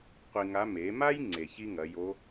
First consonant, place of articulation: uvular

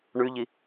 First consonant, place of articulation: retroflex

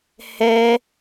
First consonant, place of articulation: glottal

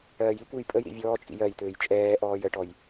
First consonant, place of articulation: palatal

